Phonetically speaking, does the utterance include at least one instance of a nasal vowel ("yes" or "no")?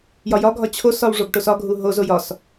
no